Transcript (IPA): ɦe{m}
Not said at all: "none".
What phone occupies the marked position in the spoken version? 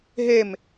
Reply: m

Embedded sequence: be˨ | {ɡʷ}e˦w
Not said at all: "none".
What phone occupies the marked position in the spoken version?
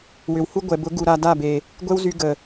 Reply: ɡʷ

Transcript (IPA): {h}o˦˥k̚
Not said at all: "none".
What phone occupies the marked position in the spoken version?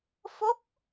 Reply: f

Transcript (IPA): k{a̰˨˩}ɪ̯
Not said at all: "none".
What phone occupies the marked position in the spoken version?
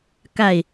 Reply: a˥˨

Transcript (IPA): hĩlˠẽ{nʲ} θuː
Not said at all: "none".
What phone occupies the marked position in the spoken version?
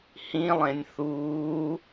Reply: nʲ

